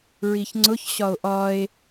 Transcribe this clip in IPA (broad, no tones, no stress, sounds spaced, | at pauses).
ɹ i ç ŋ͡ǀ ʊ ç ɕ ɒ o̯ ʔ ɒ e̯